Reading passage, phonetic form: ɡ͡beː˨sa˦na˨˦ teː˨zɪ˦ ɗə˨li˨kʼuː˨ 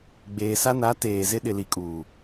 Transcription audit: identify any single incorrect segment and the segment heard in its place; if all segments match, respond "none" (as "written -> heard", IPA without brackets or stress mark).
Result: ə˨ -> ɪ˨